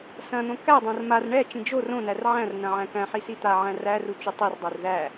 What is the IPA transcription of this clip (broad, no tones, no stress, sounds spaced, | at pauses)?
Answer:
s ɐ̃ n̪ õ k æ dˤ ɐ̃ r m a r ɳ ɛ t͡ʃ ĩ d͡ʒ o r õ n æ r ʕ æ̃ r n ɐ̃ ʕ æ̃ k æ̃ ħ i s i t̪ a ʕ æ̃ r æ r u t͡ʃ u tˤ i r dˤ ɛ r ð æ